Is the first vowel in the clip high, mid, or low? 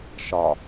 low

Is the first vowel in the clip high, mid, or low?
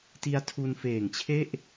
high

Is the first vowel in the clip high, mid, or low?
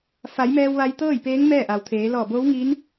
low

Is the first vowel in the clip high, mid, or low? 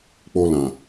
mid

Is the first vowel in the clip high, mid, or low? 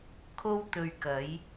mid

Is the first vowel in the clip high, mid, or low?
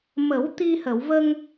mid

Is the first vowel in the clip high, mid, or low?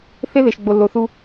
mid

